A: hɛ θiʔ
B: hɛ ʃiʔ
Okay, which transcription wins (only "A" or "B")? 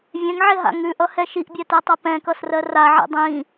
B